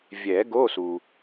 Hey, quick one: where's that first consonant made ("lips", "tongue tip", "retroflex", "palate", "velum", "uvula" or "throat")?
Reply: lips